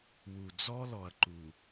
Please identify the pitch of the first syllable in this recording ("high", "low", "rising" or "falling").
low